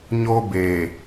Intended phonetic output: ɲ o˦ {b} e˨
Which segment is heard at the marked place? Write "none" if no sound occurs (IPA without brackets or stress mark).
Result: b